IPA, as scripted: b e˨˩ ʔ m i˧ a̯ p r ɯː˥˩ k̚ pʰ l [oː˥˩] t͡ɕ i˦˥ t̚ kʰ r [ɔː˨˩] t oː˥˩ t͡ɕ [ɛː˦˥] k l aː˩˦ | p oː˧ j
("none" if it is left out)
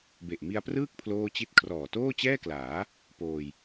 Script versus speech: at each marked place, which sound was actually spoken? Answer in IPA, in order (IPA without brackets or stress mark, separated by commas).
oː˥˩, ɔː˨˩, ɛː˥˩